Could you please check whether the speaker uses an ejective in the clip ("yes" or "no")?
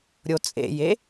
yes